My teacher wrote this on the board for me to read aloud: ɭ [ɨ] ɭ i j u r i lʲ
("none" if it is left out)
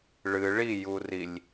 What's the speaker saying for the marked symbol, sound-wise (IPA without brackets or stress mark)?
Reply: ɨ